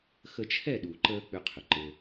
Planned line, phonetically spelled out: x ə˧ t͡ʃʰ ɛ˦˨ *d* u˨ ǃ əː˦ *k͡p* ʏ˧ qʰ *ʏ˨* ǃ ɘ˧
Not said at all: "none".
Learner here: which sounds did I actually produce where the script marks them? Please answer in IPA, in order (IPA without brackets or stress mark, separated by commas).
ɗ, k͡p, ʏ˨